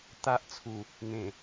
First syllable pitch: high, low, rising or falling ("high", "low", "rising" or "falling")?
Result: high